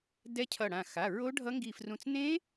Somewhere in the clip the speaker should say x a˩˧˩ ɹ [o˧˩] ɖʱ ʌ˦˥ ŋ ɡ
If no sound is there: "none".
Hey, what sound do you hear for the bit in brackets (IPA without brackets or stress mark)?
o˦˥